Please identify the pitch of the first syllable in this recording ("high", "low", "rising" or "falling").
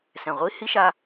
low